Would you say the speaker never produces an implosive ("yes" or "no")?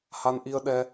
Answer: no